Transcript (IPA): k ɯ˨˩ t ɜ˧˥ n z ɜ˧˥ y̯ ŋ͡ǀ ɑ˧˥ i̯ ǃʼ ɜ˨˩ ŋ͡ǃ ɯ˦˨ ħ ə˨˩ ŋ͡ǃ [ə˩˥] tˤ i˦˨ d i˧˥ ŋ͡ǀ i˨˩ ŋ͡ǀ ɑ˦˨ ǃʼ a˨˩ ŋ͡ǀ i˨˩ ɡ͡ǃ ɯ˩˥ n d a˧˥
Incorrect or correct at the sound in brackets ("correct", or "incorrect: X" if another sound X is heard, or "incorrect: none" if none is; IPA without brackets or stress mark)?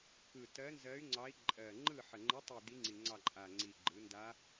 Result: incorrect: ə˧˥